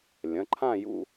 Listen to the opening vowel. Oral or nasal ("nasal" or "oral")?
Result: nasal